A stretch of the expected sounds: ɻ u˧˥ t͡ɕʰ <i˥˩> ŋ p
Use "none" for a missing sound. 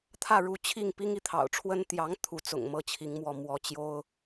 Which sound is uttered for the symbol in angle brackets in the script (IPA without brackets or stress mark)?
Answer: i˥˩